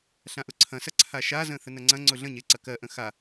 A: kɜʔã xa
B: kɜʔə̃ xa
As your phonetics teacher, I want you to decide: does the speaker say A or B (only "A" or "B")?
B